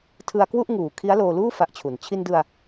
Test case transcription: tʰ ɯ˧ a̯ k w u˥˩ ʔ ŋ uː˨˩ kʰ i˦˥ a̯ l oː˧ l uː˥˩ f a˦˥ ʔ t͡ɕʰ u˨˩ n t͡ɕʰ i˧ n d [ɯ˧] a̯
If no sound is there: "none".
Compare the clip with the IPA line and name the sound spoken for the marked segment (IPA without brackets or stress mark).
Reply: ɯ˧